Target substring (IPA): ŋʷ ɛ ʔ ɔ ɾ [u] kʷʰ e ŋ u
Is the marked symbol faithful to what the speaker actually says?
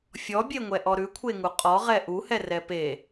no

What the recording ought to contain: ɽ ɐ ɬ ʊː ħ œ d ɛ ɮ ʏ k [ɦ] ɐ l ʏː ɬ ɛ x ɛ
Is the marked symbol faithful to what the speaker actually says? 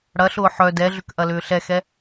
no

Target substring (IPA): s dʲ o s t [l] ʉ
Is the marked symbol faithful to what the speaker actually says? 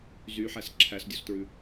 no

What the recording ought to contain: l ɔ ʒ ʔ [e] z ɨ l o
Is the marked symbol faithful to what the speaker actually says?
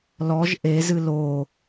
yes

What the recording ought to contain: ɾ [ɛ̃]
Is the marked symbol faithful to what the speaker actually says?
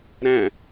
no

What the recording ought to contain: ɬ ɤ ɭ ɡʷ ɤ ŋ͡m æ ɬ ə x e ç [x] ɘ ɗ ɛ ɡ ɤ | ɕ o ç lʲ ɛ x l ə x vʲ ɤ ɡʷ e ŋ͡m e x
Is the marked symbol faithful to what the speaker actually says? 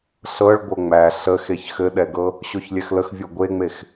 yes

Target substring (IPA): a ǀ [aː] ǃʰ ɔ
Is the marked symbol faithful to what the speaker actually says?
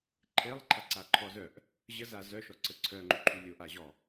no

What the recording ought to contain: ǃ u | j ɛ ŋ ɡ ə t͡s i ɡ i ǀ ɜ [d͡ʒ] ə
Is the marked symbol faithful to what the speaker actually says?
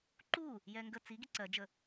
yes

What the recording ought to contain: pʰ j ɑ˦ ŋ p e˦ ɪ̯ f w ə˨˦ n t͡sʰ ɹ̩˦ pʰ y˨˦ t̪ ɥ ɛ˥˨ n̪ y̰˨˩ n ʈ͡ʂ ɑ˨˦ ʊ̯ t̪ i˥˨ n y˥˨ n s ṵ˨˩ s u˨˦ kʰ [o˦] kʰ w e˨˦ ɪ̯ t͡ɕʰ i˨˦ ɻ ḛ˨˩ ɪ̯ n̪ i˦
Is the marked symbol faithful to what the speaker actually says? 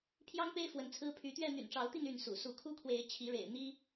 no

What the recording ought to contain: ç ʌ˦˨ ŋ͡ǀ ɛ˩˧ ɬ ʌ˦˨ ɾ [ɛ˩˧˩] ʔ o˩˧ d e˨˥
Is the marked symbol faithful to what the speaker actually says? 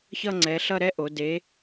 no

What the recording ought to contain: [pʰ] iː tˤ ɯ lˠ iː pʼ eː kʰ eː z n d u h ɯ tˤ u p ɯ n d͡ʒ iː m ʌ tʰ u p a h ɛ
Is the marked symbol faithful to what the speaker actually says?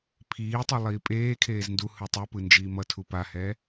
yes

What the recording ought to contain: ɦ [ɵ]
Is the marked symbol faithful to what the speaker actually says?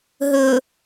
yes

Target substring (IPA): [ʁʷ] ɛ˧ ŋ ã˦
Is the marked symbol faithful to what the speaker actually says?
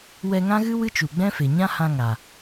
no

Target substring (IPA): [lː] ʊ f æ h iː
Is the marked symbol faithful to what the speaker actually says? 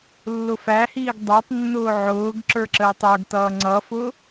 yes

